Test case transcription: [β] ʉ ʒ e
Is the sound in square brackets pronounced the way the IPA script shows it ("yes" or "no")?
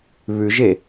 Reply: yes